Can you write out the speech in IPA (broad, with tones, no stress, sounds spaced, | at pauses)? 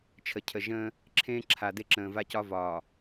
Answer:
t͡ʃʰ ə˨ cʰ ə˨ ʒ ə̃ː˦ | ǁʰ ẽː˦ ǁʰ a˨ d e˦ ǁ ə̃ː˨ v a˦ c ɒ˦ v ɒː˨